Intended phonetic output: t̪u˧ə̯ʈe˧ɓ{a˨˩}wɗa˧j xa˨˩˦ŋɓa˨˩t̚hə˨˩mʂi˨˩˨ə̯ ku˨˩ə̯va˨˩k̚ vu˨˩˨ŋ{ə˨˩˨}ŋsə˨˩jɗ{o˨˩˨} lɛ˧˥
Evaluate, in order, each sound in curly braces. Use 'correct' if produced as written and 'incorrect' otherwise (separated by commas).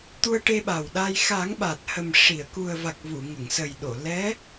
correct, correct, correct